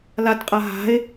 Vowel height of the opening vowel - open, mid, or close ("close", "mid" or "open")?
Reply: open